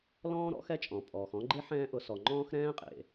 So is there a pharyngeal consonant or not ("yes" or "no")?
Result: yes